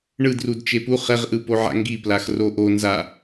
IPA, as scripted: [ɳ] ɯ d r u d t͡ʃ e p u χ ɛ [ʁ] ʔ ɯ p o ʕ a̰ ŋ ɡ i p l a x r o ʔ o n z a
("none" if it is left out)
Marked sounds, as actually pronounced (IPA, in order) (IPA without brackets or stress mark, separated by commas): ɳ, ʁ